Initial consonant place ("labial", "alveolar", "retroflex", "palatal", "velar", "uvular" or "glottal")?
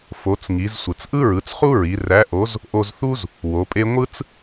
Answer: labial